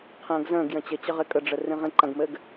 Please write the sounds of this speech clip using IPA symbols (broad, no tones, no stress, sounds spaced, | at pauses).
qʰ ə̃ː ɡ z ə̃ː ɡ j ə̃ t͡ɕ ɘ t͡ɕ ə ʁ ɪ kʼ ə ɖ͡ʐ ɘ r ĩ ʁ ĩ ǃ ɐ̃ ɡ m ɘː ɡ